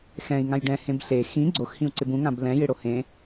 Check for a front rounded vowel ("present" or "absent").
absent